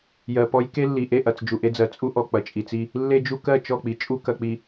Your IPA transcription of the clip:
j ɜ˨ p ɔ˦ j k e˦ lː i˨ ʔ e˦˨ ʔ ɐ˨ t͡s d͡ʒ u˨ ʔ e˦ d͡z ɜ˨ t͡sʼ u˦ ʔ ɔ˨ k͡p ɐ˨ t͡ʃʼ i˨ t͡s i˦ | lː e˦ d͡ʒ u˦ k ɜ˦˨ t͡ʃ ɔ˦˨ k͡p i˨ t͡ʃʼ u˦ k ɐ˨ k͡p i˨

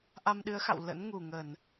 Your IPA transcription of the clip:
ʔ a˧ m ɗ ɨ˨˦ ə̯ x a̰˧˨ w l ə̰˧˥ n ŋ u˨˩ ŋ ə˧˩˨ n

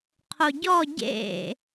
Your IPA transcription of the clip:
qʰ o ɟ ɔ ɟ ḛ

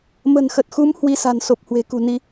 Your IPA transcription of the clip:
m ə̤˨˩ n x ə˨˩ t̚ x u˨˦ m h w i˧ s a̤˨˩ n s o˨˩ p̚ h w e̤˨˩ k ṳ˨˩ n i˧

